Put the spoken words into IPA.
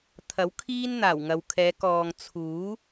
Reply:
t̪ʰ ɐ˨˥ w kʰ iː˥ n n̪ aː˨˩ w ŋ ɐ˨ w kʰ ɛː˨˧ k ɔː˨ ŋ t͡sʰ uː˨˥

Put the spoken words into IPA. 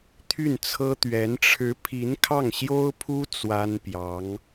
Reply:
t̪ʰ y˥˩ n t͡sʰ ɤ˥ t̪ ɥ ɛ˧˥ n ʈ͡ʂʰ ɻ̩˧˥ pʰ i˧˥ n kʰ ɑ˥˩ ŋ ɕ j o˥ ʊ̯ pʰ u˥ t͡s w a˥ n p j ɑ˧˥ ŋ

